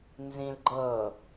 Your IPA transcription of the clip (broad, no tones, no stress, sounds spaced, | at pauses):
n z ĩ l ɡ͡ǃ ɤ